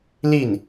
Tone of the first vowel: falling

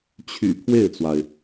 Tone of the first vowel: low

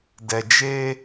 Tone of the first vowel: low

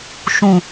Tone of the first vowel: low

